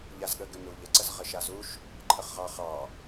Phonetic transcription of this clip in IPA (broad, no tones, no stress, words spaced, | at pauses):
ʎazɠəɡʏnu ʎəǀəz ʁəʃazuʃ | ǃʰəχʁɑχɑ